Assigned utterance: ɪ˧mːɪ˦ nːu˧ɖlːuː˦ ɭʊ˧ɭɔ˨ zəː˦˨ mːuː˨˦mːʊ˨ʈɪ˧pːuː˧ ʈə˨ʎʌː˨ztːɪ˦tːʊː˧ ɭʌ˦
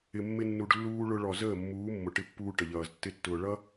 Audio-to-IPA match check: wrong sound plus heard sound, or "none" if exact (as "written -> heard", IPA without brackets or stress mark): none